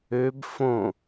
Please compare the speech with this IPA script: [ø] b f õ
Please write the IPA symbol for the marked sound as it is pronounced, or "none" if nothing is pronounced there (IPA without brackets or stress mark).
ø